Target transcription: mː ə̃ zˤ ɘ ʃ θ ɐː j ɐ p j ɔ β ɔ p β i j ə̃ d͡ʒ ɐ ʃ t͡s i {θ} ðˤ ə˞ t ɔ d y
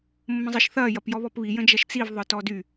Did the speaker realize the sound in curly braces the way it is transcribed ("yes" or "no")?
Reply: no